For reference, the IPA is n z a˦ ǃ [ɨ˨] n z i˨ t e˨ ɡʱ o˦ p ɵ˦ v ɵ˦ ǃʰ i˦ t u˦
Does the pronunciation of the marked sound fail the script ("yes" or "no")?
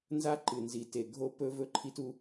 no